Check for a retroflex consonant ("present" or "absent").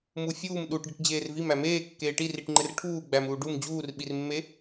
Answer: present